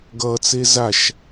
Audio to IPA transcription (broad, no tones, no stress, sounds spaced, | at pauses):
ɡ ʌ t͡s e z a ʃ